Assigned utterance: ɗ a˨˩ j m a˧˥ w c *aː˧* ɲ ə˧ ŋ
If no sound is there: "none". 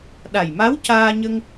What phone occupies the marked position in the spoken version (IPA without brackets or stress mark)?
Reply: aː˧